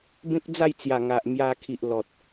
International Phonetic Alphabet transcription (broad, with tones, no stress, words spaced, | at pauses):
bẽ˦k̚d͡za˥˧jt͡sja˨˩ ŋa˨ʔmja˧kʰi˨ʔ lɔ˨t̚